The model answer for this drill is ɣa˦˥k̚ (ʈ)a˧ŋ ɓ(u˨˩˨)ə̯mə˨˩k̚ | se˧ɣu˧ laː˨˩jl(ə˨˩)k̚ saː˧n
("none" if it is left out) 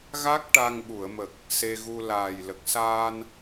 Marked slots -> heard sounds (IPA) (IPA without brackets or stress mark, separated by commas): ʈ, u˨˩˨, ə˨˩